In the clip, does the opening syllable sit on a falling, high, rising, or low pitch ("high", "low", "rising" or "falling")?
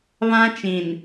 high